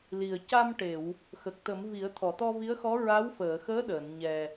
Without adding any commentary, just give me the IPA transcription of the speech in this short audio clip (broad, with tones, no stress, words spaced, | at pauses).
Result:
li˨˩ə̯ ca˧mʈe˨˩˨w | xə˨˩k̚t̪ə˨˩˦mvi˨˩˦ə̯ t̪ʰɔ˨˩˨t̪ɔ˧vi˧˥ə̯xɔ˧˥ ɹa˧˥wfəː˨˩˨xəː˧˥ ɗəː˨˩˨n ɲɛ˨˩